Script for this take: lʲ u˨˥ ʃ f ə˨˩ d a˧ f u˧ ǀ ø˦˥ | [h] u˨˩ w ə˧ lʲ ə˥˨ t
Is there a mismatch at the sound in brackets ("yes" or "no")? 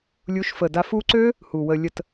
no